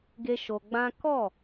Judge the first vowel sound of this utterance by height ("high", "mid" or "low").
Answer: mid